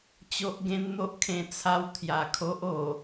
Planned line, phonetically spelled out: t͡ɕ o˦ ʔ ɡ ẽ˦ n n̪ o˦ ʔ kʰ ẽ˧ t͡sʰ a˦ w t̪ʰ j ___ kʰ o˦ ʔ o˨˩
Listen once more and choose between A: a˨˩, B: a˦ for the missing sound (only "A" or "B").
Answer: A